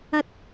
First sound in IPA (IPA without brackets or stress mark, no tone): ɐ